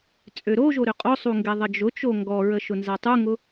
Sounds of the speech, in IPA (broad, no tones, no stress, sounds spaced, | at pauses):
t͡sʼ ø ɾ o ʒ o ɾ ø qʼ o sˤ u ŋ ɡ ɛ ðˤ ə d͡ʒ ʊ t͡ʃ o ŋ ɡ ɔ ɹ ə ʃ ʊ n z a tˤ u ŋ ʊ